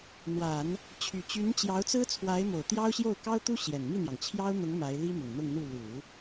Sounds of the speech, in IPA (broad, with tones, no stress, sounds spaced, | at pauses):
n̪ w a˨˩˦ n | t͡ɕʰ y˨˩ t͡ɕ y˧˥ n t͡ɕ j ɑ˧˥ ʊ̯ t͡s ɹ̩˥ t͡sʰ w a˧˥ ɪ̯ m o˨˩ ʊ̯ t̪ j ɑ˥ ʊ̯ ɕ j o˥˩ ʊ̯ k ɑ˥ ʊ̯ t̪ u˥ ɕ j ɛ˨˩ n m i˥˩ n̪ j ɑ˩ ŋ t͡ɕʰ j ɑ˥ ʊ̯ n̪ ʊ˧˥ ŋ m a˧˥ ɪ̯ l i˥ m ʊ˨˩ ŋ n̪ ʊ˥˧ ŋ n̪ u˥˩ l u˨˩˦